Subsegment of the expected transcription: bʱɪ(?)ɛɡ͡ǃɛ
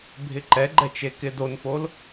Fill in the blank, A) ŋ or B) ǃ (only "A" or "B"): B